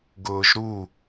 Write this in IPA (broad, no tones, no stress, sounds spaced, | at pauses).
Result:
ɡ ʊː ʒ ɾ u